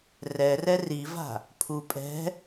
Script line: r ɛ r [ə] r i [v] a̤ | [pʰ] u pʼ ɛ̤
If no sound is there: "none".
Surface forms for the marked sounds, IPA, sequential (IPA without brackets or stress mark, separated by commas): ɛ, v, pʰ